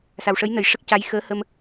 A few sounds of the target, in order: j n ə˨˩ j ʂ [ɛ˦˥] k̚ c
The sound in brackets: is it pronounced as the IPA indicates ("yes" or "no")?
no